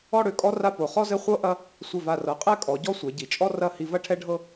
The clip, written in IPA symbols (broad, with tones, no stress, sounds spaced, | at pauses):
ɔ˥˧ ɽ ø˩˧ kʼ ɔ˥ r a˥˧ p o˩˧ χ ɔ˥ z ɘ˥˧ χʷ ɤ˥ ʔ ɐ˥ | sʷ ɘ˧˩ v a˧˩ r ɤ˩˧ qʼ ɛ˥˧ kʼ ɔ˩˧ ɟ ɔ˥˧ sʷ ɛ˩˧ ɟ i˩˧ t͡ʃʼ ɔ˥ r ɐ˥˧ h i˧ v ɐ˥ ʈʰ ɛ˥ ɖʱ ɤ˥